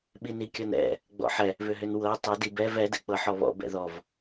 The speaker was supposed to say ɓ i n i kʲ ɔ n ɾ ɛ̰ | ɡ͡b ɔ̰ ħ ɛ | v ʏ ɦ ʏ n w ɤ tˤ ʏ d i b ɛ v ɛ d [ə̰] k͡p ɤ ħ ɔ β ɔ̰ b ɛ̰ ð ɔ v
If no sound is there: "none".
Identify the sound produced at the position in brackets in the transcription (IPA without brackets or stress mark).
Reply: ɛ̰